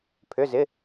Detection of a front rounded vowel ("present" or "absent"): present